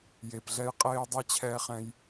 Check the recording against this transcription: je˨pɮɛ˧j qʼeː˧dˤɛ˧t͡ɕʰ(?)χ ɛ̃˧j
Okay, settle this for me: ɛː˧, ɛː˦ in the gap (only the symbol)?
ɛː˧